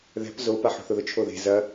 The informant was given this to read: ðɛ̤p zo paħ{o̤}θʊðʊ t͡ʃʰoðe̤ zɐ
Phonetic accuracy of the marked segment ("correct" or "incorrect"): correct